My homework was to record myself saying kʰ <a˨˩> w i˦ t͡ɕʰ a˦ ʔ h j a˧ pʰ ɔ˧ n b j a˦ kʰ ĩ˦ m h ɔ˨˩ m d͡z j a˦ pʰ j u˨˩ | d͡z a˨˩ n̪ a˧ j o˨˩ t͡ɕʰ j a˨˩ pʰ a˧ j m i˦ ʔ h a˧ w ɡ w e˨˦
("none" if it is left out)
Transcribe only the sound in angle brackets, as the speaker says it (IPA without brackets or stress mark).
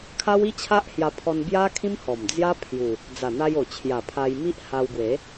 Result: a˦